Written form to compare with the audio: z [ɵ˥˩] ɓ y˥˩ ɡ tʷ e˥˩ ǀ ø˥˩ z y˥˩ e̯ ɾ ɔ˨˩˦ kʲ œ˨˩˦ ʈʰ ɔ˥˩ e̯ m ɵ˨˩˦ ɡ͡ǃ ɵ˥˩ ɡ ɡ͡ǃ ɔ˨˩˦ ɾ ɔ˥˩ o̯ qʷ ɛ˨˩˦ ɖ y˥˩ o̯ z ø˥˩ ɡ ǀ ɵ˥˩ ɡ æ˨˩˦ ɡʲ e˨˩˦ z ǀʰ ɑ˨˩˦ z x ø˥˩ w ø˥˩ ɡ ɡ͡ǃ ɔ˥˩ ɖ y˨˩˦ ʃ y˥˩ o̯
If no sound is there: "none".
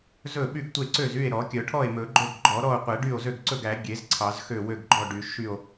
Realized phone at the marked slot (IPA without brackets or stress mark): ɵ˥˩